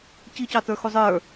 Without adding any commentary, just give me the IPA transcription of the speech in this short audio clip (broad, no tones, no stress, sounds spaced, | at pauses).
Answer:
c i c ɑ t ə˞ x u zˤ ə˞